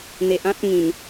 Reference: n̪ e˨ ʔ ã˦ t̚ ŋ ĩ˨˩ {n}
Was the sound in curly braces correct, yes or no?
yes